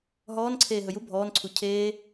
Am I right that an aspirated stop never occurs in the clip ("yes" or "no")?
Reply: no